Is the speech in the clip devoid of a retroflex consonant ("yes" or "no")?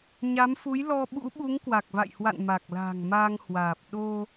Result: yes